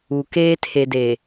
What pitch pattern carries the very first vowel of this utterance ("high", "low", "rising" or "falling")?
low